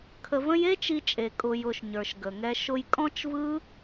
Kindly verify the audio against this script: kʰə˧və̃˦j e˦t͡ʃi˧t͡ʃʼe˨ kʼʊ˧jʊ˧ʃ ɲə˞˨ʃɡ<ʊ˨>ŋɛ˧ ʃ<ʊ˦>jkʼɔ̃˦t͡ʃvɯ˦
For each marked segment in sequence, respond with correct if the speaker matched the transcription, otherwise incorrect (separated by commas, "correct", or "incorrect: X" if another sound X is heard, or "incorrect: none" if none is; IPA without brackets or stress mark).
incorrect: ə˨, incorrect: ʊ˧